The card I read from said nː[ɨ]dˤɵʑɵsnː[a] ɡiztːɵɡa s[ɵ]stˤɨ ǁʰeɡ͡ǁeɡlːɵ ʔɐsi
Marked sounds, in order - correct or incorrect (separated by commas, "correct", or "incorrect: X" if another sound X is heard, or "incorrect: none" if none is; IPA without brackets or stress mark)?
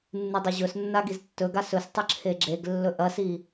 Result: correct, correct, correct